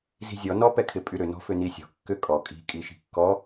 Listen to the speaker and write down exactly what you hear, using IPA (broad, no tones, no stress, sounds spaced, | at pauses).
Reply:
z i̤ zʲ ɔ n ɔ p ɛ kʰ ɪ pʼ y ɾ ʏ n ɔ̤ f ʏ n i sʲ ɔ̤ kː ʏ kʼ ɔ kʼ i̤ kʼ i ʃ i̤ kː ɔ